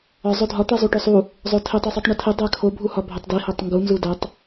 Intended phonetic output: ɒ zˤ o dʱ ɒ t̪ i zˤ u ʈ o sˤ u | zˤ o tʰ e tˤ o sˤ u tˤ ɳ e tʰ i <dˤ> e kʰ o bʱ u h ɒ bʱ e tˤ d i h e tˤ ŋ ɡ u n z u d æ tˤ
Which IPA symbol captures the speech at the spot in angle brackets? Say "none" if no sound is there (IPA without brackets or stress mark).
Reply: dˤ